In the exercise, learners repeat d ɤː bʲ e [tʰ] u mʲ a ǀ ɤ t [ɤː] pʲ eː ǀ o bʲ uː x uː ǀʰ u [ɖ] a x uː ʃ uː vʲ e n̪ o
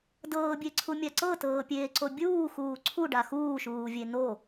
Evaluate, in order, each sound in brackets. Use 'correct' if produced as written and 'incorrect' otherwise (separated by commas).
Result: incorrect, correct, correct